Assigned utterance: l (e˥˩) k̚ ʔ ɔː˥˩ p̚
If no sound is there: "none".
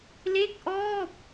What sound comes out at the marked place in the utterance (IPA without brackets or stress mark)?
e˥˩